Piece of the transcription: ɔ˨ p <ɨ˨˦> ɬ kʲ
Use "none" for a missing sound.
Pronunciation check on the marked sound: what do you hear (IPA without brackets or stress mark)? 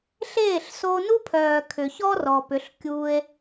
ʏ˨˦